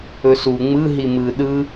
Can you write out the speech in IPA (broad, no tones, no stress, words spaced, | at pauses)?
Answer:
ɵsu ŋ͡mɯ ɦimɯ ɗɯ